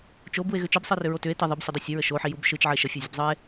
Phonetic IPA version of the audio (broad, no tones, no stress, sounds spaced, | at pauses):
t͡ʃ o b u e̯ ɣ ʏ t͡ʃ ɯ b sˤ ɯ r ʏ ɹ o t ʏ e̯ t ə ðˤ ə b sʲ ə dˤ ɯ sʲ ə ɹ ə ʃ o ħ i j u b ʃ ɯ t͡ʃ ʕ ə e̯ ʃ ə fʲ o zʲ ə b zˤ ɯ e̯